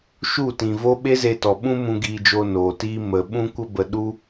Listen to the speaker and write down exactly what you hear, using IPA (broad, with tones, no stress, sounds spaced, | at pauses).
ʃ u˦˨ t ĩ˨ v o˦ ɓ e˦ z e˧ t ɔ˨ ɓ ũ˦ m ũ˧ ɡ iː˧ d͡ʒ o˧ n oː˨ t iː˦ m ə˨ ɓ ũ˧ kʷ ə˧ b ə˨ ɗ u˦